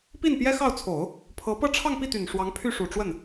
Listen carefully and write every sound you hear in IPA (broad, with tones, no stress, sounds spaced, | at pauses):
p i˥˩ n p j ɛ˥ x ɑ˥˩ ʊ̯ t͡sʰ o˨˩˦ ʊ̯ | pʰ ɤ˧˥ p ɤ˥˧ ʈ͡ʂʰ ɑ˥˧ ŋ p i˥˩ t̪ y˨˩ n ʂ w ɑ˧˥ ŋ pʰ y˥˩ ʂ u˨˩ ʈ͡ʂ w ə˥˩ n